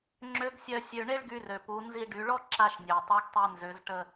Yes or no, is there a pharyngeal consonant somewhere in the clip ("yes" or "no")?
no